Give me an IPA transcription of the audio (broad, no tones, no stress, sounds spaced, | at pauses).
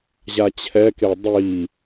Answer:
ʑ a t͡ɕʰ ɛ k e dˤ i